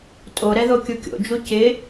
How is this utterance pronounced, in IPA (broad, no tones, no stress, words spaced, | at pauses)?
tʼo ɾɛðokʲukʲo̰ d͡ʒucɪ